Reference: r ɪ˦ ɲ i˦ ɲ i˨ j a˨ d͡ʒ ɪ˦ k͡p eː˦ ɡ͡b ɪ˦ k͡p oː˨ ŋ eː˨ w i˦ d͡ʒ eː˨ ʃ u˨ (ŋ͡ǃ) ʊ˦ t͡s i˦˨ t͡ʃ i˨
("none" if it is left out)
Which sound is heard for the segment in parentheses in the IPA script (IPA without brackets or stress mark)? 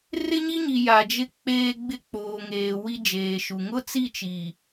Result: ŋ